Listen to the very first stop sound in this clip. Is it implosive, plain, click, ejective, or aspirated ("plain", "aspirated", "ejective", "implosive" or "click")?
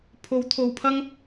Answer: aspirated